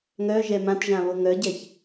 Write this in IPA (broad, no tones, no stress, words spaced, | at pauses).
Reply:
ŋœ ʒɛmãtʒã βoŋœɟɛç